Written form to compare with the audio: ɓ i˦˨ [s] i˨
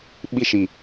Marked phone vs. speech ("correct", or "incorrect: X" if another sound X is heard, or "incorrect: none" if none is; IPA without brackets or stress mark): incorrect: ʃ